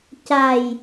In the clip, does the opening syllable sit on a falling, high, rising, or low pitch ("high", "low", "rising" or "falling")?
low